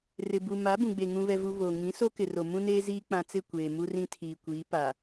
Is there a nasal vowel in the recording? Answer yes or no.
yes